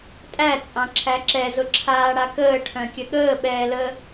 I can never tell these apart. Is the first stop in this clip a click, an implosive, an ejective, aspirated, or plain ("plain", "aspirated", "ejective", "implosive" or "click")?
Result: ejective